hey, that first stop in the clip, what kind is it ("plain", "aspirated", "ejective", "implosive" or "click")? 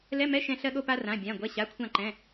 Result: implosive